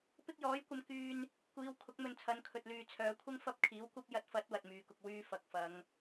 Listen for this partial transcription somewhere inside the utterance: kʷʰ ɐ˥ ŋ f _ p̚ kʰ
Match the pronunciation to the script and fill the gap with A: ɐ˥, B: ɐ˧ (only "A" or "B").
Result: A